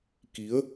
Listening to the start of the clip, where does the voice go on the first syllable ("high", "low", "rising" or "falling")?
rising